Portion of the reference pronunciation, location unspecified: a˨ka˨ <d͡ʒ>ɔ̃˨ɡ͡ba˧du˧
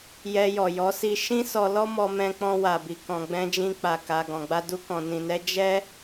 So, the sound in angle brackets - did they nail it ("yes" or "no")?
no